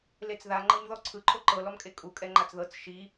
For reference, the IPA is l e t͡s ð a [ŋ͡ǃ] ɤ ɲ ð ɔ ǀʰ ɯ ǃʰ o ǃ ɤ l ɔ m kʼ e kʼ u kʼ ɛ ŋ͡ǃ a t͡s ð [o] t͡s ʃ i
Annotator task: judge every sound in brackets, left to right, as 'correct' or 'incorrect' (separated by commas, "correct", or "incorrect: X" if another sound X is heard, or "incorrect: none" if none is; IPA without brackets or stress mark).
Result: correct, incorrect: ɤ